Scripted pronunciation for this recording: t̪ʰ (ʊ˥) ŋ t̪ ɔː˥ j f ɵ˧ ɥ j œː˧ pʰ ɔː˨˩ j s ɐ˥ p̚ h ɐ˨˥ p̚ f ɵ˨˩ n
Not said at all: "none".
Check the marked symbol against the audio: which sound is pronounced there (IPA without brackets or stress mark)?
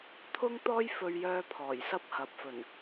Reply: ʊ˥